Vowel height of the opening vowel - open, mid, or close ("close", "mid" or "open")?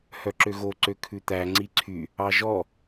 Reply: mid